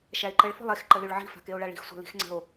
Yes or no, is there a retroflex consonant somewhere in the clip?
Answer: yes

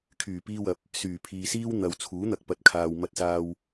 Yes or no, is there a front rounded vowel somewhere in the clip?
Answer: yes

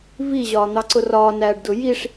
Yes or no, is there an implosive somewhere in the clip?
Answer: no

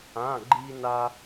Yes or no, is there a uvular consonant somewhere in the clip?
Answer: no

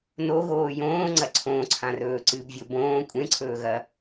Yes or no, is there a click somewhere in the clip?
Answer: yes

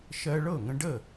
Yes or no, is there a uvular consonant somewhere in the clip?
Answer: no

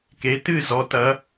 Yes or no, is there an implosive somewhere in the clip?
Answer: no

